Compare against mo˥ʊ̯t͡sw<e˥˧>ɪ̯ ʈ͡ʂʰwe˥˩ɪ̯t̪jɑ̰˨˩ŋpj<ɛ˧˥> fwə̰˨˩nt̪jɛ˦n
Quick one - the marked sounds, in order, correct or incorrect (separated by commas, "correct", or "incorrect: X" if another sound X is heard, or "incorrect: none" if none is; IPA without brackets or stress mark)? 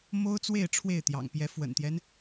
correct, correct